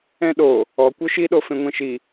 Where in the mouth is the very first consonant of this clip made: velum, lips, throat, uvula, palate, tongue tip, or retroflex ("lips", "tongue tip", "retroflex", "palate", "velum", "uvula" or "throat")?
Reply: tongue tip